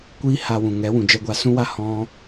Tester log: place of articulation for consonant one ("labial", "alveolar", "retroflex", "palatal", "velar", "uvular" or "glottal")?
velar